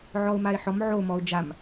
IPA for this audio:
ʕɔʊ̯maɪ̯ħɔm ʕo mɔʊ̯d͡ʒam

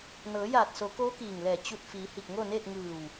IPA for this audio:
nɤː˩˧jaː˧˩t̚so˩˧ koː˧˥kiː˧˩ŋlɛː˧˩ t͡ɕu˧˩t̚ fiː˩˧ hi˧˩k̚ŋo˥˨neː˥˨t̚ ŋɯː˧˩w

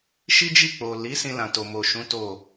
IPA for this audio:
ʃi˦d͡ʒi˦˨k͡po˨ li˨˦ sĩ˧lã˨to˨ mo˨ʃũ˨˦ to˦˨

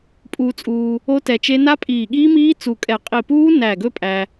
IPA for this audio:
pʼuː˧t͡sʼuː˧ | o˦˥tɛ˧t͡ʃe˦˥ na˦˥pʼiː˧˩ɠiː˦˥miː˦˥ t͡su˧˩kʼɛ˧˩ qʼi˧˩puː˦˥ næ˧˩ɡɵ˦˥ pʼæ˧

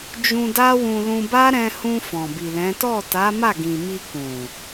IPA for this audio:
d͡ʒũ˧da˦wũ˧lũ˧ ba˦ɾɛ̃˧hũ˧ fɔ̃˨bi˨lɛ̃˨˦ tɔ˦˨ta˨˦ma˦˨ɡĩ˨ mi˧kũ˨

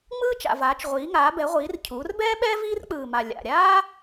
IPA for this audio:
ŋ͡mɯː˥t͡ʃa̰˨˩vaː˩˧t͡ʃ ʁʷiː˩˧ŋaː˩˧bɛ˩˧ʁʷiː˩˧r cʰuː˩˧rbɛː˥ɓɛː˥ viː˥rk͡pɯː˨˩ma˨˩ lʲa̰˨˩ ɾʲaː˥

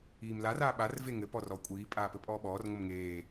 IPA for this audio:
iːmlar aːɓar veŋɘ pɔrɔ kʷʼiː pʼaːpɘpʼɔːɓɔːr ŋʷɘmŋeː

